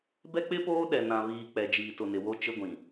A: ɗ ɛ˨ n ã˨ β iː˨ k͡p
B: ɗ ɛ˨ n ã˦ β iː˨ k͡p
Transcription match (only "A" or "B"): A